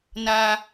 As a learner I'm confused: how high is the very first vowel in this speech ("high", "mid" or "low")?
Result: low